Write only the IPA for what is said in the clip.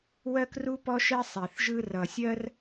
w ɜ˥ k r u˥ p ɔ˥ ʃ ɛ˥ sˤ e˨˩ θ ʒ ɯ˥ r ʌ˨˩ sʲ ɜ˥ r

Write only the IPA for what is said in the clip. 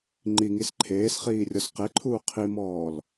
ŋ͡ǃ i ŋ i s ǃʰ eː s χ iː rʲ ɔ s q e ǃʰ uː qʰ i m ɔː l

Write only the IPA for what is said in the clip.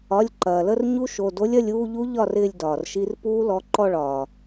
ɒ˩˧˩ lʲ ǃ ɐː˩ l ə˥˧ r ɲ u˦˥ ʃ o˩˧˩ d o˦˥ lʲ ɐ˥˧ lʲ uː˥˧ ʎ u˦˥ ʎ ɒ˥˧ r ɪː˥˧ lʲ d ɒː˩ r ʃ i˦˥ r p uː˦˥ l ɔ˩˧˩ ǃ ɔ˥˧ ɭ ɒː˩

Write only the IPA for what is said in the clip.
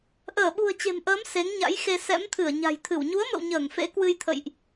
ʔ əː˧˩ ɓ ṳ˨˩ ə̯ t͡ɕ e̤˨˩ m ʔ əː˨˦ m s e˨˦ ŋ ɲ a̰˧˥ j x e˧ s ɛ̰˧˥ m t̪ʰ ɨ˧˩ ə̯ ɲ a̤˨˩ j t̪ʰ ɨ˧˩ w ɲ u˨˦ ə̯ m ə̰˧˨ w ɲ əː˧˩ ŋ f ḛ˧˥ k w ɨ˧ j t̪ʰ ə̰˧˨ j ʔ

